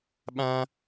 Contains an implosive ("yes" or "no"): yes